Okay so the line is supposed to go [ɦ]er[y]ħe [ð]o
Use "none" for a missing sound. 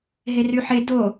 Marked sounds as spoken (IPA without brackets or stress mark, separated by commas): ɦ, y, d